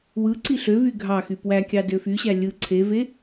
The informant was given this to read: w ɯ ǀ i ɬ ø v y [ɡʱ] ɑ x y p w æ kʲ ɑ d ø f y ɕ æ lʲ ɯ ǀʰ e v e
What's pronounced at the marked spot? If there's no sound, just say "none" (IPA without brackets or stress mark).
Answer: ɡʱ